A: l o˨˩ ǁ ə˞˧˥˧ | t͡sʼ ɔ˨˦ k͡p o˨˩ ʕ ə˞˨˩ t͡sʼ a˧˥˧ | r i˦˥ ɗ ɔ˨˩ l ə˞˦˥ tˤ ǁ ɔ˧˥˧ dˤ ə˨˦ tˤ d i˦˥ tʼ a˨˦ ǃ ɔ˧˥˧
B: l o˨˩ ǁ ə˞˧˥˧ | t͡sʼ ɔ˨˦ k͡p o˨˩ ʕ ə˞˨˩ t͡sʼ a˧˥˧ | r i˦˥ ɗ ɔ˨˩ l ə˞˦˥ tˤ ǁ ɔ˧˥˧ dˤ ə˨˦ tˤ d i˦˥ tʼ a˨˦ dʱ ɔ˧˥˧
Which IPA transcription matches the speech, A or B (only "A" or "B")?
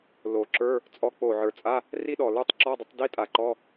A